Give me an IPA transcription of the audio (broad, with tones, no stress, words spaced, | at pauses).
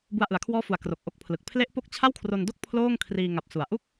bu˧a̯ʔɯ˩˦a̯kʰwɔː˦˥fu˩˦a̯ kro˨˩k̚ʔo˦˥k̚pʰlɯ˨˩k̚ pʰle˦˥ʔpo˦˥k̚ t͡ɕʰa˥˩wkʰro˧ndo˥˩k̚ pʰloː˥˩ŋ kʰriː˧ŋa˨˩p̚su˩˦a̯ ʔu˦˥k̚